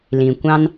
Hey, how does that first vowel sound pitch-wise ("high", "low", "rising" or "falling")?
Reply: low